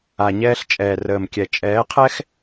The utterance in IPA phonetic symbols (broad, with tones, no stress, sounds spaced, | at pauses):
a˨ ɲ ɛː˧ ɬ t͡ʃʼ ɛː˨ r əː˨ m kʲ ɛ˨ t͡ʃʼ ɛː˨˦ qʰ ɛ˦ x